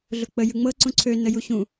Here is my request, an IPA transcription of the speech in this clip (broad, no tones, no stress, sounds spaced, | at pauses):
ɮ ʊ k͡p ə j ɯ ŋ͡m ɤ ǀ ũ ǀʰ ø n ə j u ɕ ũ